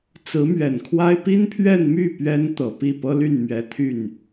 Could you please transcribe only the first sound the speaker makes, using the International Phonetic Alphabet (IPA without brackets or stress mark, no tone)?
t͡s